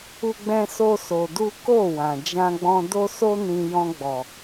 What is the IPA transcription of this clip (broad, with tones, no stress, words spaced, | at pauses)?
u˦ɡ͡bɛ̃˦so˦ so˧du˦ ko˦˨wã˨ d͡ʒã˧ɡ͡bɔ̃˧do˦so˦ nĩ˧ jɔ̃˧ɡ͡bɔ˨